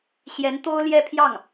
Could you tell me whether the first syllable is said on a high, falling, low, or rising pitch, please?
rising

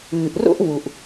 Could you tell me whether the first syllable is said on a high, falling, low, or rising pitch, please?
low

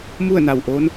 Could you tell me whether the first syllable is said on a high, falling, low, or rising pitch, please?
falling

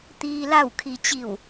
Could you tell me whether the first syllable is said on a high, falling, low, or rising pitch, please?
low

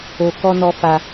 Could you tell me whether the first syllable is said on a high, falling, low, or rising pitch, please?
low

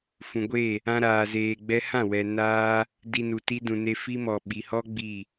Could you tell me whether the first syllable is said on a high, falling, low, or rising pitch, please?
low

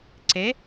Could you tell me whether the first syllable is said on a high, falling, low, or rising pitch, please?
rising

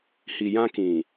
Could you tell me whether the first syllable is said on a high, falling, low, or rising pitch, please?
low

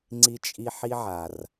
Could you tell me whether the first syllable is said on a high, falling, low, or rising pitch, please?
high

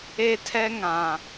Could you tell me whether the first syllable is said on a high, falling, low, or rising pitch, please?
high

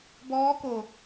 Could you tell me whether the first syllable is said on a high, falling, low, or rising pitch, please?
rising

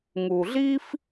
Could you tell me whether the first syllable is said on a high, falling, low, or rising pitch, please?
low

